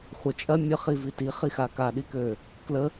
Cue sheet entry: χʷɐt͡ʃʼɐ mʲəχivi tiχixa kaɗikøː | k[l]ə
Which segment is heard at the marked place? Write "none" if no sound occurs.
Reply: l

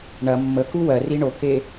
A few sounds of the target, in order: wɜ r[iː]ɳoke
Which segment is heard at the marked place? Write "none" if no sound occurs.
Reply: i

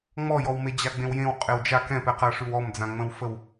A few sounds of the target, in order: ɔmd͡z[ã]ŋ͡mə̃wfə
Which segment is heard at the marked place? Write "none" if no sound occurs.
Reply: ã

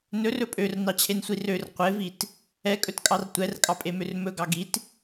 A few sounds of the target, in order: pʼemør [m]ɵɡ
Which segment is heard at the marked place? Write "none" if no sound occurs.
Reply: m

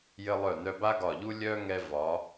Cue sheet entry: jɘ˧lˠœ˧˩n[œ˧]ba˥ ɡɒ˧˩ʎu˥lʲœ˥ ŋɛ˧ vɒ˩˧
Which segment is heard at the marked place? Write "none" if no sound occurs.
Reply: œ˧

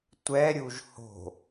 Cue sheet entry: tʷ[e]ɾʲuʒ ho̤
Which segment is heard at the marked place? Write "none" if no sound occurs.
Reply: ɛ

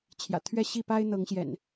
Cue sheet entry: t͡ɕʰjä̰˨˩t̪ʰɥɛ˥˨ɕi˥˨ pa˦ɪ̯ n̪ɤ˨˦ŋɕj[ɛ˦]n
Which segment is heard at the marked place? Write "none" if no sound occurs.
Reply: ɛ̰˨˩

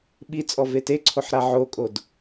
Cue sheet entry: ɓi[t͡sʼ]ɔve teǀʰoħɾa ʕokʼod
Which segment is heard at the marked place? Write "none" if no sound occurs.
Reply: t͡sʼ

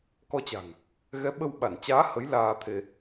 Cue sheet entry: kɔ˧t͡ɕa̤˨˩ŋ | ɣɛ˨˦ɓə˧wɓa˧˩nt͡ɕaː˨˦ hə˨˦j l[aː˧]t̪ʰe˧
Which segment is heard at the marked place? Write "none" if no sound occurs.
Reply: aː˧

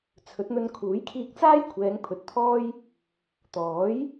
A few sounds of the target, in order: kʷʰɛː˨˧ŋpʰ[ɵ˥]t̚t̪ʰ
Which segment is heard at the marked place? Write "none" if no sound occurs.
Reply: ɵ˨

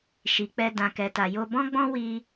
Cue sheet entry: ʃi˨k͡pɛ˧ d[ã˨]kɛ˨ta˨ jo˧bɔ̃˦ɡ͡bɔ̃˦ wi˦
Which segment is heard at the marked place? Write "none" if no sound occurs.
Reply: ã˨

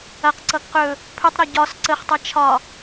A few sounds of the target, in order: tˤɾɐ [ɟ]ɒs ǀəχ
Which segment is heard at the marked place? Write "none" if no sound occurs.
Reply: ɟ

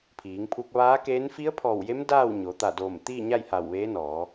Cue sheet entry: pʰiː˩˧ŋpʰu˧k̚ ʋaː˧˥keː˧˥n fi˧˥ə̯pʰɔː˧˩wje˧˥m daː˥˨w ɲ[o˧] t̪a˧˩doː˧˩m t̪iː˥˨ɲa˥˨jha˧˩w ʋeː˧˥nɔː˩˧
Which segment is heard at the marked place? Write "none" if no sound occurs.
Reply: o˩˧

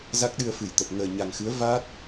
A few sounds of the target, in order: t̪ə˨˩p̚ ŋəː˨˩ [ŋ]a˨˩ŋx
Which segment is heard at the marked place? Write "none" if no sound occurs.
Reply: ɲ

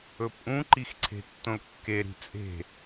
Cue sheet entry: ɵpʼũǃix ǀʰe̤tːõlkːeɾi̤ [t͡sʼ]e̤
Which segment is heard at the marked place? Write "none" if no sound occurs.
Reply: t͡sʼ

